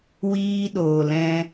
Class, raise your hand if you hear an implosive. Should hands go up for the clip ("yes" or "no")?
yes